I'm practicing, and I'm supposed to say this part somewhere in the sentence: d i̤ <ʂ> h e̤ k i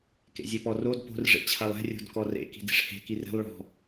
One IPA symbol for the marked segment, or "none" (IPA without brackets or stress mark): ʂ